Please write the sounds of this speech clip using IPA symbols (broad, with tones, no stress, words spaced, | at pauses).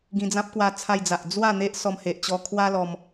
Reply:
ɡĩ˧d͡zã˦p̚kwa˧ t͡sʰa˧jd͡za˨ʔ d͡zwa˥˧ n̪e˦ʔsɔ˧mhe˨ʔt͡ɕɔ˧ kʰwa˦lɔ˧m